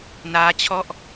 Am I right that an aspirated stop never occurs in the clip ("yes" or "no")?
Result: no